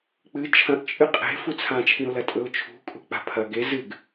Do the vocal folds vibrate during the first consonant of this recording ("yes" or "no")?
no